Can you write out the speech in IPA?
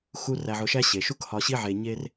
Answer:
xu˧ ræ˧ʕʊ˧ʃæ˦ɕe˨ ʃu˧khɒ˨ɕi˧ʕe˨ ɲe˦r

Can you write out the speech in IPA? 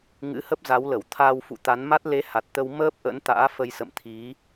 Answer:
ŋɨ̰˧˥hə˦˥p̚za˨˦wlə˧˩w t̪ʰaː˧wfṵ˧˨t̪a˨˦nma˦˥t̚ le˨˦ ha˨˩t̚t̪ə˧w məː˦˥p̚ ʔə̰˧˥nt̪a̰ː˧˥fə˧jsə̰˧˨m t̪ʰi˨˦

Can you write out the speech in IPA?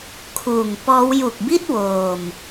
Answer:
kʰuː˨˩ŋpɔː˦˥w ju˨˩k̚bi˥˩t̚ woː˧m

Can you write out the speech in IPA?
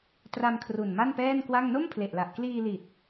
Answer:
tra˧mkʰru˨˩n ma˥˩npɛː˥˩nkwa˥˩ŋ no˥˩mpʰle˨˩ʔla˨˩ʔ kliː˧li˨˩t̚

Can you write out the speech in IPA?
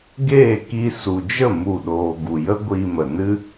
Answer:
ɡeː˦˨ki˧ su˨d͡ʒə˦˨ mu˦˨ɗoː˧ ɡu˨jə˦ ɡʷi˧mə˨nɨ˦

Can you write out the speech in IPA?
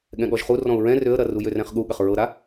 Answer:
ɠɛ̃ɠɔʒχu rɔ̃ʊ̯ɹɛ̃ røə̯ɾɐru jørɛ̃χɠuɠɐχ ɹɤɾa

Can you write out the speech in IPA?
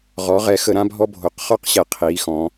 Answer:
ʁɔ˩˧ʁɛ˩˧xə˩˧ ɾã˦bʱɔ˦bʱo˩˧q χɔ˦qɕɛ˩˧ qʰiː˩˧xɔ̃˩˧

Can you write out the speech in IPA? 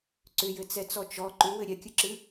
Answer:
ǀʏjɘt͡sɛt͡sɔ t͡ʃɔ ǃʏwɘ ɾʲɛkʲɨǁɨ

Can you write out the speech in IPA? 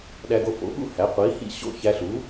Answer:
ɗæ˧ɡo˧fo̰˩˥ ɠṵ˥ hæ˩˥qʷiː˩˥hḭ˥˩ ɕo̰˥˩ çæ˧ɬu˩˥

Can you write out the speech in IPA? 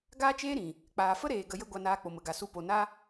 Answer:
ɡaː˦t͡ʃeː˦ɾĩ˨ | k͡paː˨fə˦ɾeː˨ ɡə˧jə˦ɡʷa˧naː˧ k͡po˨mə˨ɡa˨su˧ po˨na˦

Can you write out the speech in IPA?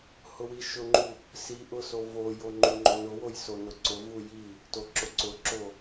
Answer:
hʊwiʃʊŋ͡ǃu | siʔʊ sovojo ŋ͡ǃuŋ͡ǃonʊwoj sonʊǀʊvu ji | toǁʊǀʊǁo

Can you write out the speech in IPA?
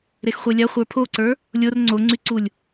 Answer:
ɾexχʷelʲa χʷə˞pʰoǀə˞ | lʲor ŋ͡ǀoŋ͡ǀyǀulʲ

